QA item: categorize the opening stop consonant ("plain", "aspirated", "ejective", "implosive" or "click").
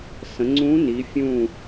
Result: click